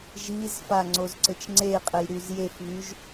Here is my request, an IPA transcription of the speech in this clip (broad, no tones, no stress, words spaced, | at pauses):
ʒizfa ŋ͡ǀozǀɘt͡ʃŋ͡ǀeqʼɘj ɾyzjefβyʒ